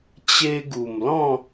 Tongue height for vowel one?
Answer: mid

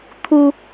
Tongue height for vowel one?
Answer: high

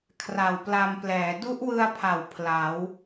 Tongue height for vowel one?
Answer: low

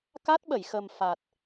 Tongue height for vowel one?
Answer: low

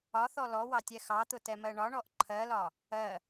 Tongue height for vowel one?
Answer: low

